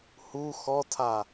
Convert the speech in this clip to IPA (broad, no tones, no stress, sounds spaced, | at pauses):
h u x ɔ tʰ a